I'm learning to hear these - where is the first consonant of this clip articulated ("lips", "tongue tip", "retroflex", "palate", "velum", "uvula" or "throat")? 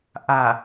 throat